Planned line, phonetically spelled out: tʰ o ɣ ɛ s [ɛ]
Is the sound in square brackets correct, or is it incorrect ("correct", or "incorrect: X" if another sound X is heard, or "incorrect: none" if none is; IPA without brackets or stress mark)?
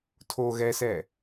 correct